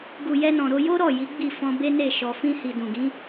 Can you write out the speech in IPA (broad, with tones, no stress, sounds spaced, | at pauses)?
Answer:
ɡ u˨ j ɛ˧ n ɔ̃˨ ɾ o˧ j o˦ ɾ ɔ˦˨ j i˨˦ ɡ͡b i˦˨ f ɔ̃˧ b e˦ n e˦˨ ʃ ɔ˨ f ĩ˧ h i˨ d ũ˨ ɡ ĩ˨˦